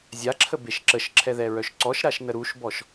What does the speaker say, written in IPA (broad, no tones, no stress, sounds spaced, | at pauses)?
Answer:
zʲ a ǁʰ ə b e ʃ ǁ ə ʃ ǁʰ ɛ ð ɛ ɹ œ ʃ ǀ ɔ ʃ ɾ a ʃ n ə ɾ u ʃ b ɔ ʃ